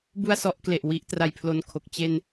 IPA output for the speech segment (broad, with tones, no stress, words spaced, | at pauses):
bu˥˩a̯sɔ˦˥ʔkle˨˩ʔ wi˦˥ʔtra˧jpʰlo˧nkʰo˨˩k̚ t͡ɕe˧n